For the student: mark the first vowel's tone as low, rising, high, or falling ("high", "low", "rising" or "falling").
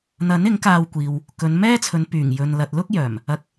rising